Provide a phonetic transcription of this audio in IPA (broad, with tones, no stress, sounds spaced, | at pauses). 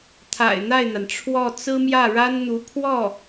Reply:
t̪ʰ a̰˨˩ ɪ̯ n̪ a˥˩ ɪ̯ n̪ a˩ n ʈ͡ʂʰ w ɔ˥˩ t͡s ɹ̩˥ m j ä˥˩ ɻ a˥ n n̪ u˧˥ pʰ w ɔ˥˩